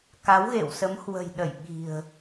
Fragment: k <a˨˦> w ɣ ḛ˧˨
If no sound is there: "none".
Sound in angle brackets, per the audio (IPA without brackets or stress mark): a˨˦